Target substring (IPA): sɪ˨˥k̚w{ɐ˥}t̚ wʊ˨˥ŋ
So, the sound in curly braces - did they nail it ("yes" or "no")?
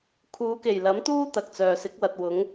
no